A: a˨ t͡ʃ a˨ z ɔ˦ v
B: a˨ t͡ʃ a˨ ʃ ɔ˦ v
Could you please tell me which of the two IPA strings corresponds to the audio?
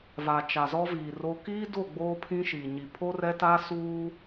A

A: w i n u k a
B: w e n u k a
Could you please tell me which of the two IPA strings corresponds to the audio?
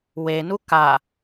B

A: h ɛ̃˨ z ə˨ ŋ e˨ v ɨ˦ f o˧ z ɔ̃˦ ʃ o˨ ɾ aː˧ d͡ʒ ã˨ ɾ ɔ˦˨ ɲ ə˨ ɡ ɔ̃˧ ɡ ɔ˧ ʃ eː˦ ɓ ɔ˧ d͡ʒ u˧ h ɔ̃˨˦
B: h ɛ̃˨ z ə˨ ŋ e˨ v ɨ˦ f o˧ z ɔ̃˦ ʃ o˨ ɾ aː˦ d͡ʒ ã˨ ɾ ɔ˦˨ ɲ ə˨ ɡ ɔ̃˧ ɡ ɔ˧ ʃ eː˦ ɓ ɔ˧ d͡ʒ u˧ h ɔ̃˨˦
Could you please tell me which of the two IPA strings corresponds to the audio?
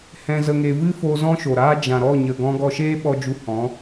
B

